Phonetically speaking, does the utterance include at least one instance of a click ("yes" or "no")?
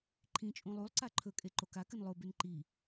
yes